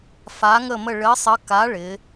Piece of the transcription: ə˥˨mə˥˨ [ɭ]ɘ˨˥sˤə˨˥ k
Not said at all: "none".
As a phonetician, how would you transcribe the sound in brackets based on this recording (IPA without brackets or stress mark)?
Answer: ɭ